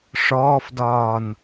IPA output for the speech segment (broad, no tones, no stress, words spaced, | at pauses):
ʂɔːfdɒːn